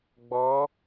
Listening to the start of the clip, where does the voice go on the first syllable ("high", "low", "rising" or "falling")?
rising